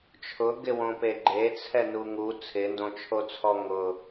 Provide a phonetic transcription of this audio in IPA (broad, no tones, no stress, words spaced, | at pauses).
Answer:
t͡ʃʰʊɡɪwõpe ɡ͡ǃet͡sʰɛnu ŋu t͡sʰɪndõt͡ʃʰot͡sʰɔ ŋʊ